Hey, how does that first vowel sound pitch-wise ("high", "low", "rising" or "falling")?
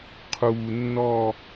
low